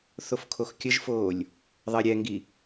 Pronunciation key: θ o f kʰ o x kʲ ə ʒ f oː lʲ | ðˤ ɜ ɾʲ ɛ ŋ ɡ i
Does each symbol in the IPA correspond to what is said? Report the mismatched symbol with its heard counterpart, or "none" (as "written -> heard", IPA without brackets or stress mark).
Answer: none